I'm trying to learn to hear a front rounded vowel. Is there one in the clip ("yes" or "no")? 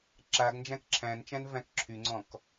yes